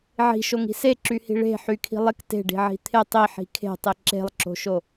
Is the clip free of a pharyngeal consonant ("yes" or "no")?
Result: no